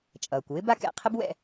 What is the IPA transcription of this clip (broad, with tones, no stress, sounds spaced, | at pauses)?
t͡ʃʼ ʌː˩ kʷ w ɪ˥ b a˥ k ɛ̰˨ qʰ ɪ˥ b w ɛ̰˦